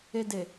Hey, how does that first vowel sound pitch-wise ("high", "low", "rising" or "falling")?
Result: low